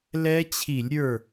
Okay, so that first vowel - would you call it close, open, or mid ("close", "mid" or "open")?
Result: mid